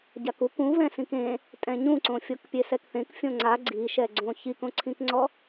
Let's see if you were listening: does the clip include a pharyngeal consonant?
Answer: no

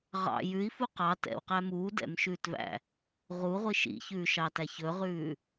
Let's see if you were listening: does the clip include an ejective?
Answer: no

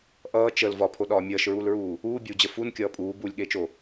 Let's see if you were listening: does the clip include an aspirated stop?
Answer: yes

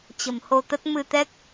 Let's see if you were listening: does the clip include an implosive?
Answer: no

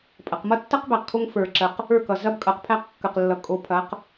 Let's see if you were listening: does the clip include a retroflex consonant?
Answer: no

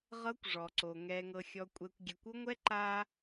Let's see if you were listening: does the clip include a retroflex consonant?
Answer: yes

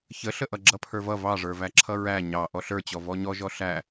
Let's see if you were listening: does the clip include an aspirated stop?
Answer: yes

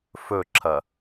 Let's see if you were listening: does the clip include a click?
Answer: yes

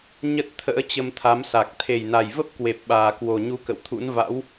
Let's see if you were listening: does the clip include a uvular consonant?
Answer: no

